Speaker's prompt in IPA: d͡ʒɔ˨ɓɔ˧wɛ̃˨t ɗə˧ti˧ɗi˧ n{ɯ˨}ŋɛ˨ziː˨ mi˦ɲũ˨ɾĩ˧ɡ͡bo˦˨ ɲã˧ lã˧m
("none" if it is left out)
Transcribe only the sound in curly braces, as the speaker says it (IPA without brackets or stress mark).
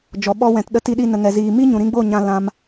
ə˨